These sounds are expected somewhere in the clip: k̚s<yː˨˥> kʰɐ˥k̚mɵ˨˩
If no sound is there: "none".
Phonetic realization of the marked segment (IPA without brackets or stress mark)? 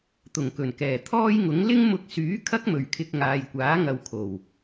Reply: yː˨˥